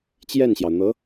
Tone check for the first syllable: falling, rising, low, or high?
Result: falling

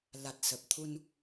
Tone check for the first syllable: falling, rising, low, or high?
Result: low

